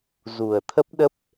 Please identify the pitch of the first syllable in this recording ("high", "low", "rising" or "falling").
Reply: low